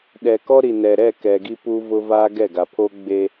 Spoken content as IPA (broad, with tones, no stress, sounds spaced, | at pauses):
ɗ ɛ˨ k ɔ˦ ɾ i˨ n ɛ˨ ɾ ɛ˦˨ k ɛ˨ ɡ i˦ p u˦ v ʊ˦ v a˦ ɡ ɛ˦˨ ɡ a˨ pʰ o˦ ɡ͡b e˦